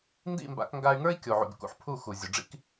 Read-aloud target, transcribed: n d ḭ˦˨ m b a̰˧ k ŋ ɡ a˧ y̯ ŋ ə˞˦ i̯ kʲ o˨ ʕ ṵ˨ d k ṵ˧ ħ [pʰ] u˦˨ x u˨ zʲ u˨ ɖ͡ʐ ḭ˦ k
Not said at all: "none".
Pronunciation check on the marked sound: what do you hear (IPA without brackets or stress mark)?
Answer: pʰ